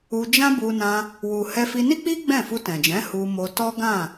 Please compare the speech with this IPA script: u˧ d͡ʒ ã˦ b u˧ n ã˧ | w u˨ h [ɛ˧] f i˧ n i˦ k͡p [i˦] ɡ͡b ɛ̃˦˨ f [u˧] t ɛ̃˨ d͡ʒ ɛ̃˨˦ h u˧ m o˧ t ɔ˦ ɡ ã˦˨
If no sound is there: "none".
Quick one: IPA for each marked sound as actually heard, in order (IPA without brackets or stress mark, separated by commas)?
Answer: ɛ˧, i˦, u˧